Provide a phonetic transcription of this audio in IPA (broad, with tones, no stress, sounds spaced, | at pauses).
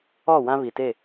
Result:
ɔ˦˨ w ã˦ β i˨ t e˦˨